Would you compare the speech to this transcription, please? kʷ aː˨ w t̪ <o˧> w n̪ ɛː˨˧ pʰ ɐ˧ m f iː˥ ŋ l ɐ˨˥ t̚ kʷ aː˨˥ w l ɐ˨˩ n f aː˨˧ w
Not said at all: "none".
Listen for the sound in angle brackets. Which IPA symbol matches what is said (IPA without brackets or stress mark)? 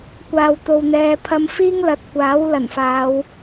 o˨